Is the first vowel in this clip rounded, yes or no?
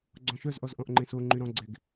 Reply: yes